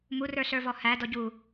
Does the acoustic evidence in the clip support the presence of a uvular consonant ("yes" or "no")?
no